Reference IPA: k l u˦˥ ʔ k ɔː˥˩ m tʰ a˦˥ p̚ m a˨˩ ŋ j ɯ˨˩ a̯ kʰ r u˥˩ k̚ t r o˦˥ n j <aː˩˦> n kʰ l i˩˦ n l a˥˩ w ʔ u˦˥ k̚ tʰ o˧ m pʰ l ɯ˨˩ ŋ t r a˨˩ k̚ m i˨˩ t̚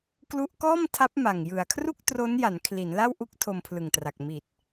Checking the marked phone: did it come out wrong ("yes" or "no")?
yes